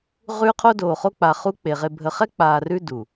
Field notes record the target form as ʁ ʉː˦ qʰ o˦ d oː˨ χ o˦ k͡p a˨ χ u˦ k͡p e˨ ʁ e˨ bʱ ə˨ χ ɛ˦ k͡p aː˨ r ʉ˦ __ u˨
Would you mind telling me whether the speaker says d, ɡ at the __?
d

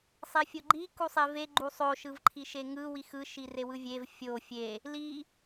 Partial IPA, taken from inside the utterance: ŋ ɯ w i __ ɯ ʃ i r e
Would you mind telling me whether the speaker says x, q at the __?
x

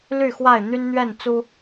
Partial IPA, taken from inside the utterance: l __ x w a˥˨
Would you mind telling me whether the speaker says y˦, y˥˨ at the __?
y˥˨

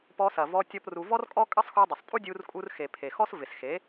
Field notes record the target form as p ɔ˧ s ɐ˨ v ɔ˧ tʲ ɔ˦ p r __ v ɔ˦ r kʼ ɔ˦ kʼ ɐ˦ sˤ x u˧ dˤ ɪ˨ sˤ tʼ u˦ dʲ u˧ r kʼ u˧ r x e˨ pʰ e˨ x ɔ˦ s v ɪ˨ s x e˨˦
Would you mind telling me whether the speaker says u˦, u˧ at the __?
u˧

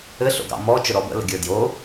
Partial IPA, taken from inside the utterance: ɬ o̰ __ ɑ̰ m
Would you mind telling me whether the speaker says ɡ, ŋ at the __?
ɡ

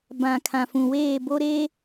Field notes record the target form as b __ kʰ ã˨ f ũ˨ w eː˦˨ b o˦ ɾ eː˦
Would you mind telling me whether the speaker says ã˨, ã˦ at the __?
ã˨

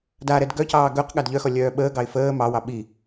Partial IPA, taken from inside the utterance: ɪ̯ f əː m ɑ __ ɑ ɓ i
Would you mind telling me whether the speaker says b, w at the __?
w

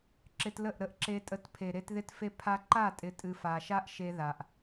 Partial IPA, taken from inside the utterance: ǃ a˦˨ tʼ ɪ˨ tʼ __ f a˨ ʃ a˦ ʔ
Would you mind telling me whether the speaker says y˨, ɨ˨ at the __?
ɨ˨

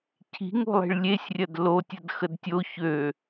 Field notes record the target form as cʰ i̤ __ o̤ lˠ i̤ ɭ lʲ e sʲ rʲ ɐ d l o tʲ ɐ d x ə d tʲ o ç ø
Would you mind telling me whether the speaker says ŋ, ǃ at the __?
ŋ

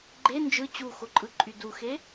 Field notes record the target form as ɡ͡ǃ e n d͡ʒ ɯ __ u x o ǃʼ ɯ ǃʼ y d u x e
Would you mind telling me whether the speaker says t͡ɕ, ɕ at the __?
t͡ɕ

